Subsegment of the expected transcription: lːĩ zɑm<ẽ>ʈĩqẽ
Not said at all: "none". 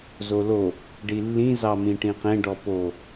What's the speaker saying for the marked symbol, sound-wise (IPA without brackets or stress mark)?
ĩ